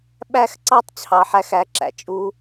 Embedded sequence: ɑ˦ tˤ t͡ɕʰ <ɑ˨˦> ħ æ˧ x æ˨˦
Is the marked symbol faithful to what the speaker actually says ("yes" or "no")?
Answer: no